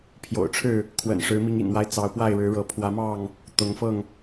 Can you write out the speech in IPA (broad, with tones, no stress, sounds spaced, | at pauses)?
pʰ j o̰˨˩ ʊ̯ ʈ͡ʂʰ ɻ̩˥˨ | kʰ w ə̰˨˩ n ʂ ɻ̩˨˦ m i˨˦ ŋ ḭ˨˩ n m w a˦ ɪ̯ t͡s ɑ˨˦ ʊ̯ p w a˥˨ ɪ̯ ɻ ɻ̩˨˦ ɻ ɤ˨˦ pʰ w ä˨˦ m ɑ˥˨ ŋ | t̪ ʊ˨˦ ŋ f ɤ˥˨ ŋ